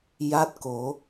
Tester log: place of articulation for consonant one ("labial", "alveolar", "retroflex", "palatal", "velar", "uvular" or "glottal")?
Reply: palatal